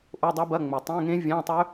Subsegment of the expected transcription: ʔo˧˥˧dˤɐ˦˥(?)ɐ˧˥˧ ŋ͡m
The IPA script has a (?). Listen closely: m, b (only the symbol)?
b